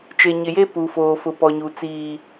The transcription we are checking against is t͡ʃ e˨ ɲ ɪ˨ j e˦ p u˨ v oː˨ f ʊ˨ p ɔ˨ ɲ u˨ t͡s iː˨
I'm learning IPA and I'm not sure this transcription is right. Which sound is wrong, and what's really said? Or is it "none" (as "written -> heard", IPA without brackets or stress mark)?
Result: v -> f